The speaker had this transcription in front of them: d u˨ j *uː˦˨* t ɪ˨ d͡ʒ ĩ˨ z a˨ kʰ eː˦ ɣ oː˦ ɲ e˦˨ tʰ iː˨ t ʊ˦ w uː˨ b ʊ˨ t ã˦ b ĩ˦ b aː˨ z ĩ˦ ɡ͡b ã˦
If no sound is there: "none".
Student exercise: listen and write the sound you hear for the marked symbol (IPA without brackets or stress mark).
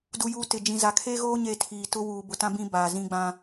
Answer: uː˨